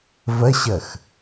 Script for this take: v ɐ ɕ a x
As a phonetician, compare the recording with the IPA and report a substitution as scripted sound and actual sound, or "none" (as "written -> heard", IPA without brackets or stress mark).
a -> ɐ